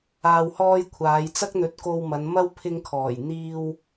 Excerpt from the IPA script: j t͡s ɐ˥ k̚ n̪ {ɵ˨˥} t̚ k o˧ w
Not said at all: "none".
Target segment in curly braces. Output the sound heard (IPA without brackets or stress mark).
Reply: ɵ˨˥